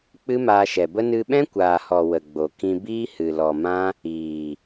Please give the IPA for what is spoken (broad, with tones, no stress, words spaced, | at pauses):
k͡pɨ˦maː˧ʃɛ˨bə˦ nɨ˧ɓɛ̃˦kʷaː˨hɔ˨ wə˨ɡ͡bo˨kĩ˧ biː˦hɨ˨lɔ˨mã˦ | iː˨